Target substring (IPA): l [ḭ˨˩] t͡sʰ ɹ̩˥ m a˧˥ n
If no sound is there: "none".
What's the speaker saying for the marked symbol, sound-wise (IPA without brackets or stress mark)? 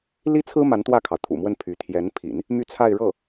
i˥